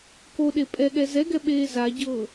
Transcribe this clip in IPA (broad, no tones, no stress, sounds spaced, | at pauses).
k o ɗ e pʼ ɛ ɠ ɛ z ɛ ɡ ɛ ɓ eː z a ɟ ɤː